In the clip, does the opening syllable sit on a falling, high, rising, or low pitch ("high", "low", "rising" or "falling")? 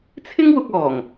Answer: high